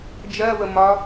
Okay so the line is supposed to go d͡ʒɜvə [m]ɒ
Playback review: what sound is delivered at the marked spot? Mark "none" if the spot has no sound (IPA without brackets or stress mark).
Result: m